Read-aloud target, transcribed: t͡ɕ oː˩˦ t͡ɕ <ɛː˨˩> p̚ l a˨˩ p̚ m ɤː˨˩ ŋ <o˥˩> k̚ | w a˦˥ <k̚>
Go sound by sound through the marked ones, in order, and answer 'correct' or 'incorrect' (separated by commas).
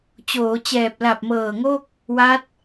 correct, correct, incorrect